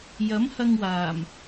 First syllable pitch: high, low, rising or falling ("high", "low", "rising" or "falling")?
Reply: rising